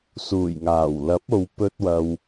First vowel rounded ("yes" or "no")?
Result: yes